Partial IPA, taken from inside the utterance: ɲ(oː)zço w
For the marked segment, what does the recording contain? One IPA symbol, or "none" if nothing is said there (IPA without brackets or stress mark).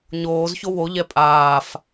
oː